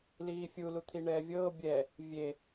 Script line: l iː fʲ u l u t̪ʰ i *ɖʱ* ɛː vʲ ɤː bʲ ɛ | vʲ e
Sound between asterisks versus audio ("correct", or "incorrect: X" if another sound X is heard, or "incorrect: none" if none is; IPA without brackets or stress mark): incorrect: ɳ